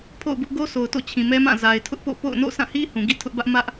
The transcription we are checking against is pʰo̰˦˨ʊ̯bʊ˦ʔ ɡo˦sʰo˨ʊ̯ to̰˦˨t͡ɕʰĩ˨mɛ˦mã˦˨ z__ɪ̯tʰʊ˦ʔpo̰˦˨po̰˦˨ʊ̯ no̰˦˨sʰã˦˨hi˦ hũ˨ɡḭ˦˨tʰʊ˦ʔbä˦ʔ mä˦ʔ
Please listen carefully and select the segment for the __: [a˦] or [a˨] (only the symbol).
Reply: a˨